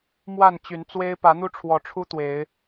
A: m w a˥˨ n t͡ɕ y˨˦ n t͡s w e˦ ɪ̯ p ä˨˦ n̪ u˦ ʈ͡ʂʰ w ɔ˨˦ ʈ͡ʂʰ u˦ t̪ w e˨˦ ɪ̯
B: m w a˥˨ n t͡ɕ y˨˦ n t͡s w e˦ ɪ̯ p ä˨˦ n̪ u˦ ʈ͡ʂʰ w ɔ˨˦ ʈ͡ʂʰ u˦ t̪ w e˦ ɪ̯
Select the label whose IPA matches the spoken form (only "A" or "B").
A